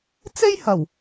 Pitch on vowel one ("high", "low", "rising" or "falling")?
high